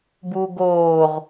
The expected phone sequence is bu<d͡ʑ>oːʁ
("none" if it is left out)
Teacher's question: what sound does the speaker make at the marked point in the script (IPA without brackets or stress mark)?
ɡ